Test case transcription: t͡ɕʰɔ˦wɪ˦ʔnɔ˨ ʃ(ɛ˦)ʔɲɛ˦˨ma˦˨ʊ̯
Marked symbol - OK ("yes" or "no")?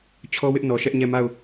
yes